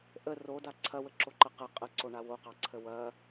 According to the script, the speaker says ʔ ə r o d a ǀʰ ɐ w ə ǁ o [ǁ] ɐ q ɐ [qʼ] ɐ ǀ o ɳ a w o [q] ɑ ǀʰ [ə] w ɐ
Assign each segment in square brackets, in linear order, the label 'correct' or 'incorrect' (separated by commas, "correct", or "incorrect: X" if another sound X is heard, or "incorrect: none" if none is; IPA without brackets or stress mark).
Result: incorrect: ǃ, correct, correct, correct